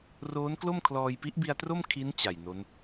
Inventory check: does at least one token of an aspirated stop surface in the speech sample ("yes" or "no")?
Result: yes